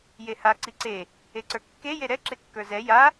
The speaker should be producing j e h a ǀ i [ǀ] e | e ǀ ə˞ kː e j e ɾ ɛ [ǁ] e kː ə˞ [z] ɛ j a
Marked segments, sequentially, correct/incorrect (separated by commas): correct, correct, correct